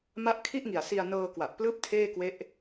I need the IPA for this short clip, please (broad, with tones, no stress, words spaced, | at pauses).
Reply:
ma˦˥ʔkʰi˥˩ʔŋi˨˩a̯ si˧a̯ nɤː˧kwa˨˩ʔplɯː˦˥p̚ tʰeː˥˩kwe˦˥ʔ